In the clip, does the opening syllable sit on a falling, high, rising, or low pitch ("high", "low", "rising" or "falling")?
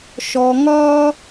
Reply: low